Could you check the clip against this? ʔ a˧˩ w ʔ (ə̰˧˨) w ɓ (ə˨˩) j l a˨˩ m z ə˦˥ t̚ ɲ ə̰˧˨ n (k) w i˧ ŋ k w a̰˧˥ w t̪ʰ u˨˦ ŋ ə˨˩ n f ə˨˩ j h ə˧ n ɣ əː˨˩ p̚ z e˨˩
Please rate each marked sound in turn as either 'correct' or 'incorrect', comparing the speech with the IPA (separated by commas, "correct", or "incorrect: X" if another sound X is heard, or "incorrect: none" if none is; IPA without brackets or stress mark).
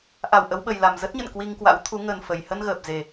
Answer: incorrect: ə˨˦, correct, correct